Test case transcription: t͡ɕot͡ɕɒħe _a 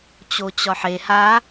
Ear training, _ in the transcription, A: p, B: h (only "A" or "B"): B